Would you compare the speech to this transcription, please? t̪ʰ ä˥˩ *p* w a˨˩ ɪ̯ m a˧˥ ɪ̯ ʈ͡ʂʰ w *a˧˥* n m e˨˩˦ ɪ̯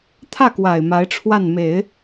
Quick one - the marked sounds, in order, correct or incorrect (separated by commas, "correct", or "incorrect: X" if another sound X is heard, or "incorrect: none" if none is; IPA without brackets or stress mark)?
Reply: incorrect: k, incorrect: a˥˩